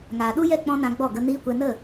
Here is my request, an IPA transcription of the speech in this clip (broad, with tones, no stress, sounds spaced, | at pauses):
ŋ aː˨ ɗ u˦ j ɛ˦˨ k͡p ɔ̃˦ n ã˧ ɡ͡b ɔ˦˨ ɡ ə˧ n iː˦ kʷ ɛ˧ n ə˦˨